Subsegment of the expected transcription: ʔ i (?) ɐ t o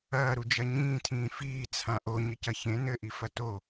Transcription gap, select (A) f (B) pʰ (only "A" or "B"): A